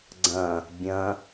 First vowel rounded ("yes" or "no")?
no